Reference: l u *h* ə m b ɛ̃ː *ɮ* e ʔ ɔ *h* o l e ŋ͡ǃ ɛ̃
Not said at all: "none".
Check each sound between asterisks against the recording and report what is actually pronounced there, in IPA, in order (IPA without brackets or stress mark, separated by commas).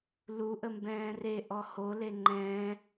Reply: ʔ, r, h